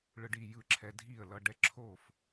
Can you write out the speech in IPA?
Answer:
ɭ ɯ˧ ɖ i˥˩ j ɯ˥˩ ǁʰ ɛ˧ dʱ i˥˩ ə̯ l ʌ˧ ɖ ɛ˥˩ ǁʰ o˥˩ f

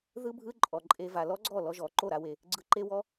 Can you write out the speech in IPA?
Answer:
ð ɯ˦ bʱ ɯ˦ ǃʼ ɔ˨ ǃʼ e˧ v a˨ l ɔ˦ ɡ͡ǀ ɔ˦˨ l ɔ˧ ʒ ɔ˨ ǃ o˦˨ ɾ a˦ w e˧ | ɡ͡ǀ ɯ˧ ǃ e˦ w ɔ˦

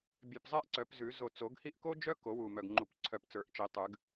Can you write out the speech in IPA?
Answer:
bʲ œ˧˩ p zˤ ɛ˦ ʔ ǀ œ˨˩˦ p z ʉ˨˩˦ z o˧˩ t͡s o˨˩˦ ɡ h i˦ ʔ k o˦ d͡ʒ œ˦ k o˨˩˦ w u˧˩ m œ˧˩ ɡ ŋ͡ǃ u˨˩˦ p ǀʰ œ˧˩ p t͡s ə˞˨˩˦ ʔ t͡ʃ i˨˩˦ tˤ ʉ˨˩˦ ɡ

